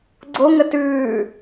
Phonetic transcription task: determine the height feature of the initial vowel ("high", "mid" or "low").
mid